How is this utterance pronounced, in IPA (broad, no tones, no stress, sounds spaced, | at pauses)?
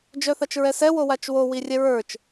d͡ʒ œ θ a t͡ʃ ɹ ɛ s ɛ w o w a t͡ʃ w o w i rʲ ɛ ɹ ə˞ t͡ʃ